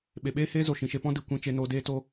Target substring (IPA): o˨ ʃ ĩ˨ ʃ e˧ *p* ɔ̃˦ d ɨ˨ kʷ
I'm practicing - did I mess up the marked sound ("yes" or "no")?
no